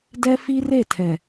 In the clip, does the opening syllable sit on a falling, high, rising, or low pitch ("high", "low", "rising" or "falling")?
high